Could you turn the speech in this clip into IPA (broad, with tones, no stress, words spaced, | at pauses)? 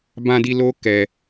bã˧di˧ lo˦kɛ˧